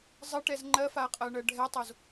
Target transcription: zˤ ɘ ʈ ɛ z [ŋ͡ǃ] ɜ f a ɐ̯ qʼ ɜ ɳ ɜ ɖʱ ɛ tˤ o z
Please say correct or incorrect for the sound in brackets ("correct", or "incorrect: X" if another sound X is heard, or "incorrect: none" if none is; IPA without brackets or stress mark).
correct